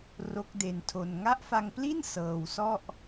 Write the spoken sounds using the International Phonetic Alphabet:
ro˦˥k̚de˧ntʰo˧n ŋa˦˥ʔfa˧ŋpli˥˩n sɤː˧w sɔ˥˩ʔ

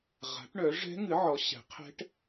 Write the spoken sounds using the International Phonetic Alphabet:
ʁa̤˨˥ʈɳœ˨˥ ʐɛ̤˦˥ŋɨ˨˥ʕɔ˨˥ ɕɛ̤˨˥qʰɛ̤˦˥ʈ

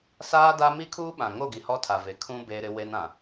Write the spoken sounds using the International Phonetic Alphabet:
saː˦da˦ mi˦kʰuː˦ɓã˨ŋo˦˨ ɡi˨hɔ˦tʰa˨ve˨ kʰũ˦ beː˦ɾɪ˦ we˦nã˨

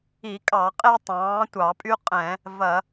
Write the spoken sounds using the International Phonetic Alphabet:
i˧˩˧kʼɑ˧˩˧qʼe˦ tˤɑ̃ː˩˥tʷɑ˧˩˧pʼy˦ qʼɛ̃˧˩˧ | vɐ˧˩˧

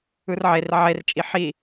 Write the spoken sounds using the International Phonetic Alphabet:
ɯrʕer ʕert͡ʃʼi ħi

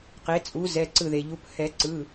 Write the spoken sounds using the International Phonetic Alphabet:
qe˩˥t͡sʼu˩˥zɛ˩˧˩ ǀɯ˧˩ðe˩ʎu˩˧˩p hɛ˨˩˦ǀɯ˩˧˩

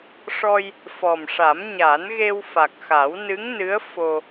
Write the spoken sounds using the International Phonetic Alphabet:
ʂɔ˧j | fɔ˨˩mʂa˨˩˦m ɲa˨˩˦nɣe˧w fa˨˩k̚xa˨˩˦wnɨ˧˥ŋnɨ˧˥ə̯ fo˧

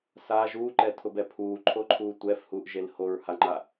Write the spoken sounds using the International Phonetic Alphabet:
sa ʒuːǃɛtʰʊbɛ pʰuːǃʰoǃʰuː tʷɛfhuːʔʒel hoɹhaŋ͡ǃa

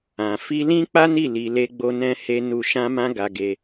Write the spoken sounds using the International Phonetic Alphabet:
ã˨ fi˧lĩ˦k͡pa˦ni˦˨ li˧le˦ɡ͡bo˦nɛ̃˦ he˦nu˦˨ ʃã˧mã˧ ɡa˧ɡe˧

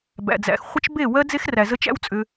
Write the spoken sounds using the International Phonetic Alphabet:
bæ̰˨d͡zæ̰˨x χʷə˦t͡ʃbe˦˨ wɜ˦ d͡ze˦xræ˨zə˦t͡ʃ æ̰˦wt͡sʼʏ˧

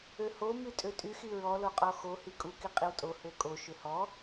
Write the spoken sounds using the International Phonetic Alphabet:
øho mytʼøtʼy xiɹɔ loqʼɔxo hikʼu kiqʼiwtʼo høkʼo ʃøhɔ

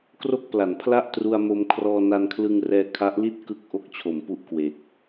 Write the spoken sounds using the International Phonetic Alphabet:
kro˥˩k̚pla˩˦npʰla˥˩ʔtru˧a̯ mo˧mkʰrɔː˧ na˧nkʰlɯ˧ŋ rɛː˧kʰa˦˥ʔli˥˩t̚ kɯ˥˩k̚ʔo˥˩k̚ t͡ɕʰo˩˦mpu˦˥ʔ kwe˨˩k̚

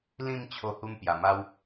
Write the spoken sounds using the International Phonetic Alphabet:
lĩ˧m t͡ɕʰo˧ hu˧m pja˨˩ma˦w

